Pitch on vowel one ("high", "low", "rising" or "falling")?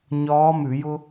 rising